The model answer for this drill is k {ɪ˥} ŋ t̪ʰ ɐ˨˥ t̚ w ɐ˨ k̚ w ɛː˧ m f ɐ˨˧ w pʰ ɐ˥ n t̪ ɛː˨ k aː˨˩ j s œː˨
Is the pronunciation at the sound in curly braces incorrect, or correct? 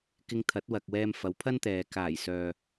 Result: incorrect